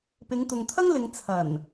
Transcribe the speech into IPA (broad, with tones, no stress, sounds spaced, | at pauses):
p ɪ˨˧ ŋ t̪ ʊ˨ ŋ t̪ʰ ɐ˥ ŋ l ɪ˨˧ ŋ t͡sʰ ɐ˨˩ n